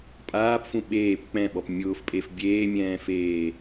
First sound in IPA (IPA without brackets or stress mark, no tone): pʼ